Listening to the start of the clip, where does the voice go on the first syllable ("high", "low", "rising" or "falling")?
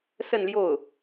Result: falling